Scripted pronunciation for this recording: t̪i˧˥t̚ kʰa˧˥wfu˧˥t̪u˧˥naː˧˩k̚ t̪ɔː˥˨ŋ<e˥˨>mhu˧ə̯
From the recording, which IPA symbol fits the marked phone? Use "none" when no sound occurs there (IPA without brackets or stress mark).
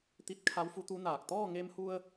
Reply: e˧